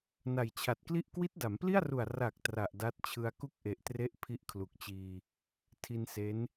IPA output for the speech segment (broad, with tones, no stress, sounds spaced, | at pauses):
n a˨˩ j t͡ɕʰ a˨˩ t̚ k l i˥˩ ʔ k w i˦˥ t̚ d a˩˦ m p l i˥˩ a̯ r u˨˩ a̯ r a˨˩ k̚ t r a˨˩ ʔ d a˦˥ t̚ t͡ɕʰ ɯ˧ a̯ k u˥˩ k̚ ʔ e˨˩ ʔ t r e˦˥ ʔ pʰ i˦˥ ʔ kʰ l u˨˩ k̚ t͡ɕ iː˧ | tʰ i˧ n s e˦˥ n